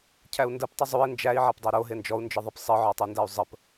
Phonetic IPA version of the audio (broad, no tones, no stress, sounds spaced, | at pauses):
cʰ æ u̯ n d ə p tˤ ɨ zˤ u i̯ n d͡ʒ æ i̯ ʕ æ p dˤ e ɾ o ɦ e n d͡ʒ ɔ u̯ n d͡ʒ ɨ ðˤ e p sˤ ɨ ʕ ɔ tˤ u n d æ u̯ zˤ ə p